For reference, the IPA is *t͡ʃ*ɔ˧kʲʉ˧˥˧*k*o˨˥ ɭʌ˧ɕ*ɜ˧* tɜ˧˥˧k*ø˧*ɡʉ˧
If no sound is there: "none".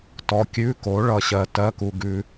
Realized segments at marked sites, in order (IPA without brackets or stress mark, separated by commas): t, k, ɜ˧, u˧